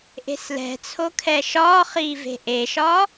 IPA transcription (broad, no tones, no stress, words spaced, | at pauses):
ʔe̤slɛ̤t͡sʰo kʰɛʃɒːχiː ve̤ʔeʃɒ